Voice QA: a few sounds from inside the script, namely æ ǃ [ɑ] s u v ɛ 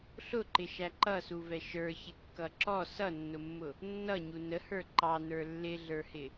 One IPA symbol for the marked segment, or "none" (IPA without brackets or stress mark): ʌ